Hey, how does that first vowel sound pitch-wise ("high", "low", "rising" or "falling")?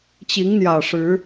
rising